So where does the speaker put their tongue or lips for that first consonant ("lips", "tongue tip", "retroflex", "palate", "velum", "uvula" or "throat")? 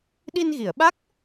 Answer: tongue tip